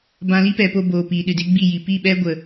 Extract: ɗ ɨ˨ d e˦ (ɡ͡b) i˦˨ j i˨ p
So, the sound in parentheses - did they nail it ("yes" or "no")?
yes